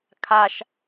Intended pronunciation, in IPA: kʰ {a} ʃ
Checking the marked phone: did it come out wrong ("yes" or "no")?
no